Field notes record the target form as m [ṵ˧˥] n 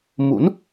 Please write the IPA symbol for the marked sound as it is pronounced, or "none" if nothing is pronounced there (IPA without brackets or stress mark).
ṵ˧˥